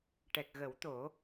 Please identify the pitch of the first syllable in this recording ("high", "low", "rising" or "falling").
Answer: low